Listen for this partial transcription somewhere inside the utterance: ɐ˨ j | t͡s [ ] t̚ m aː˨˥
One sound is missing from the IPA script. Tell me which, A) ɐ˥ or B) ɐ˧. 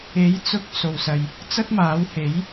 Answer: A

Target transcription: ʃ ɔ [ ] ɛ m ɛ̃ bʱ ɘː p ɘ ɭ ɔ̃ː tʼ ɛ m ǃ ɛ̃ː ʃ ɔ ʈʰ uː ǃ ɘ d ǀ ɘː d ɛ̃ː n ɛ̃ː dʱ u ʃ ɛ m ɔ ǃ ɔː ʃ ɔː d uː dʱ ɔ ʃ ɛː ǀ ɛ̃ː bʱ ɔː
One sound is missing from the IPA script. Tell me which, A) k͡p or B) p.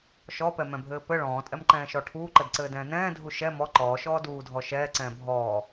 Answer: B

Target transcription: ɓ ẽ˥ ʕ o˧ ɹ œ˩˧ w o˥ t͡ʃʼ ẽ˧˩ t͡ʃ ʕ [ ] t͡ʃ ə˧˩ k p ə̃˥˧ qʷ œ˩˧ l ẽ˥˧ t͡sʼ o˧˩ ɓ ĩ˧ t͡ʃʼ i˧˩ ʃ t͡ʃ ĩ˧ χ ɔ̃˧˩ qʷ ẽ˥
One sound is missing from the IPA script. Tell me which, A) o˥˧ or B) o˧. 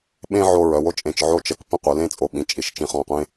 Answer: A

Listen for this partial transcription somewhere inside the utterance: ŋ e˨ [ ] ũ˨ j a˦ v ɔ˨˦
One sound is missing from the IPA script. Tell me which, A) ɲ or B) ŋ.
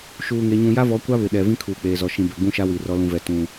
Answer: A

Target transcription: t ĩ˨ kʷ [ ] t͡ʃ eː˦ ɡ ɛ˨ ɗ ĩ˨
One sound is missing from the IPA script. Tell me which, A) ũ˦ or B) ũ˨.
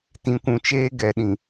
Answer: B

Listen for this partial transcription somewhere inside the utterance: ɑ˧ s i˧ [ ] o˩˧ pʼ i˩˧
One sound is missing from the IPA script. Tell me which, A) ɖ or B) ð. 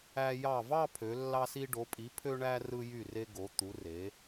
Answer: A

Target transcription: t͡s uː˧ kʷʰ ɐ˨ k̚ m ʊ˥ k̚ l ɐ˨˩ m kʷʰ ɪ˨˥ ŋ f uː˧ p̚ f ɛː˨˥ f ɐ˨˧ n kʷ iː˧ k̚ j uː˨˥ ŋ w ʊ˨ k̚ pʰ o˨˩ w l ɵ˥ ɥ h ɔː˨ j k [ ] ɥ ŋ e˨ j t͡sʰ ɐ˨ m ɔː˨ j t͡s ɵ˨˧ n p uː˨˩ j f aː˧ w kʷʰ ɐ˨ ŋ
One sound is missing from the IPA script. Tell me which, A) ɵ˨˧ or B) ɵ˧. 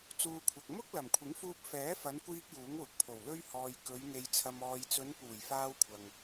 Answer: A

